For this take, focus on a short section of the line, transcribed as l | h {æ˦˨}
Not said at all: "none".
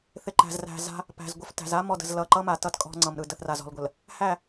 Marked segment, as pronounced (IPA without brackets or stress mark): æ˦˨